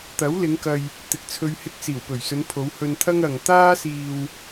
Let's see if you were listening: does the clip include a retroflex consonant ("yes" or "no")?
no